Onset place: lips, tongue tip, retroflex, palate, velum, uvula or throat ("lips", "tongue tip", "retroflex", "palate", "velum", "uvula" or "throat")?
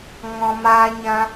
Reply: velum